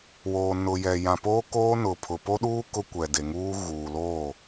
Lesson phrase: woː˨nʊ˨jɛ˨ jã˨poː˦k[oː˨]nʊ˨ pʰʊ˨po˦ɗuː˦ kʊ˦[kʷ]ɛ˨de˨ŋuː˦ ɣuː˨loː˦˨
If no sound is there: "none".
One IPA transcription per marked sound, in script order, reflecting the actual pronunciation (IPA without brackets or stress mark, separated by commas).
oː˦, kʷ